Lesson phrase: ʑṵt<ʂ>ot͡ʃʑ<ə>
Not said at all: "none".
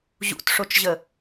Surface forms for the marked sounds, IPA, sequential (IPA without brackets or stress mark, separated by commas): ʂ, ə